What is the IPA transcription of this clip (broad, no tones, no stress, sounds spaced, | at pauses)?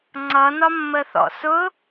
ŋ͡ǀ ʌ n ɒ mː ə θ ɔ̰ s ʊ